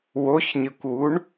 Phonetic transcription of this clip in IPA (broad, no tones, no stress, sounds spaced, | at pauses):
w o ç ɲ ɨ kʷ w u ɳ